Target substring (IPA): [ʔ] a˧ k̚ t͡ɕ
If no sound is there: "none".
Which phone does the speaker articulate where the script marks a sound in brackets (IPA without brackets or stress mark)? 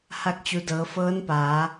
h